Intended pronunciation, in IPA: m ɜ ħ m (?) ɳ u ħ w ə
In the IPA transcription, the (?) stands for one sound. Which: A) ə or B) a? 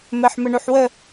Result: A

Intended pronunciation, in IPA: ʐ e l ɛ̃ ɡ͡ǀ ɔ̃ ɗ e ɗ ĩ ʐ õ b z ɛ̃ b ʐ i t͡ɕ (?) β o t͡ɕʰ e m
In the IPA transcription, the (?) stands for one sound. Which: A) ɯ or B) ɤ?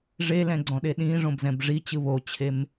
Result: A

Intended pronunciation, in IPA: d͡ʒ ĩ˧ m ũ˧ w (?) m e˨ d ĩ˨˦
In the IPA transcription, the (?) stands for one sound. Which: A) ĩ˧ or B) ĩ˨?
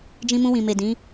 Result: B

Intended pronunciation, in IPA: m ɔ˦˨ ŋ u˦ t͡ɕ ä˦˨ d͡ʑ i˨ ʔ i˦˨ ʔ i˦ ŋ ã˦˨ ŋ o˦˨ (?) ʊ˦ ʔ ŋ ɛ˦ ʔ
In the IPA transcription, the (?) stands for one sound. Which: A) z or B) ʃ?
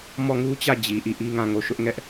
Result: B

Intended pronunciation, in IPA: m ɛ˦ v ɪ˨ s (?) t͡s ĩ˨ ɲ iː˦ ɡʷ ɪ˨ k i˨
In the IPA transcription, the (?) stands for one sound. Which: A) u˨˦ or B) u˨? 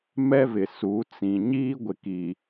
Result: A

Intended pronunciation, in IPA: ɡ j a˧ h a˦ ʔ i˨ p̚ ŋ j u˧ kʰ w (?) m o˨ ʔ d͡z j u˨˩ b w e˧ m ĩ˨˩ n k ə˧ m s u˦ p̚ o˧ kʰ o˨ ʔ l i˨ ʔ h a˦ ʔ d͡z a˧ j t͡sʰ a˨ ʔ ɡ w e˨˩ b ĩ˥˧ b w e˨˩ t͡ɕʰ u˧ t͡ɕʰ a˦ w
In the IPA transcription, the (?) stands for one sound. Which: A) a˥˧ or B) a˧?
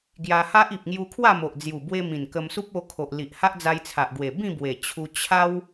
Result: A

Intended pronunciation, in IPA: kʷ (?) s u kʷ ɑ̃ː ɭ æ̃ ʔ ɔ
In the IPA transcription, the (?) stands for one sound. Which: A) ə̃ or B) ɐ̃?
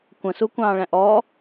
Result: A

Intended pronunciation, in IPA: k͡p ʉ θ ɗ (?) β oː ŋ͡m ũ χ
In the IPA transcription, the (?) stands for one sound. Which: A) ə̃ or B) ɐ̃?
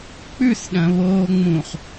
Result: B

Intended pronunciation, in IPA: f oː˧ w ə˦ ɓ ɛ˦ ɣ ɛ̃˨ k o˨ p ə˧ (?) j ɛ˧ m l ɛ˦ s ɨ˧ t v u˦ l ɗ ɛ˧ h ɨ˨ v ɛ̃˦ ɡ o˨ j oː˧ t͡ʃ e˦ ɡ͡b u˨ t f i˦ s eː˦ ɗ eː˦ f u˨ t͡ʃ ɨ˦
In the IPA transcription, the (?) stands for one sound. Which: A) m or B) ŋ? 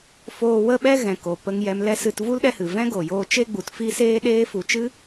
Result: B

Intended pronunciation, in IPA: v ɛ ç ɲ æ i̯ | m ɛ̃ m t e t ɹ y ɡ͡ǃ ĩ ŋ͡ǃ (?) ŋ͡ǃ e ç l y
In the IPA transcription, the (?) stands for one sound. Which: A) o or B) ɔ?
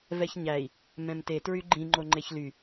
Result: A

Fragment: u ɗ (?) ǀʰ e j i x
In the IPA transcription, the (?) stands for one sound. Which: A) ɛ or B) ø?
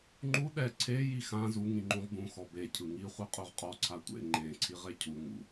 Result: A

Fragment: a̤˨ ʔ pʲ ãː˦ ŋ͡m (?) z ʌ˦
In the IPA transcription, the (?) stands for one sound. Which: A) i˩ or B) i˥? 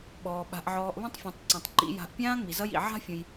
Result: A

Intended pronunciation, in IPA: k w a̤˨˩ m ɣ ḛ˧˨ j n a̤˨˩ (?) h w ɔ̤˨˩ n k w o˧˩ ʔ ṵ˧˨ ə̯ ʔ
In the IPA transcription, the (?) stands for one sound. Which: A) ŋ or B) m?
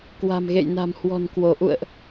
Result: B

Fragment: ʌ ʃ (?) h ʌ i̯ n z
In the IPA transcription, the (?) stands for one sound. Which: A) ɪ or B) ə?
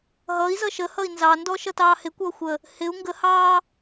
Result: B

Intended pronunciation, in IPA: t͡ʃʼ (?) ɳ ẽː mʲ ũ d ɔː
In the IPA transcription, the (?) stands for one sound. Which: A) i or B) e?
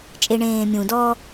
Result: B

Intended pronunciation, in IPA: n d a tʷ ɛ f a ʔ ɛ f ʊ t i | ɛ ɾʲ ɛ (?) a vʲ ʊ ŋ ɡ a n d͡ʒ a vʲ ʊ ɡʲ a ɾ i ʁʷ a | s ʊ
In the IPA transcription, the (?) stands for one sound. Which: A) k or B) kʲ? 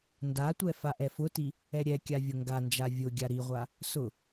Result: B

